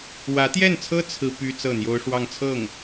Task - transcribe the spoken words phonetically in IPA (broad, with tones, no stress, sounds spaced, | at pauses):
w ä˧˥ t̪ j ɛ˥˩ n t͡sʰ ɤ˥ t͡sʰ ɹ̩˥ p y˥ t͡s ɤ˥˩ n̪ j o˥ ʊ̯ ʂ w ɑ˥˧ ŋ t͡sʰ ɤ˥˩ ŋ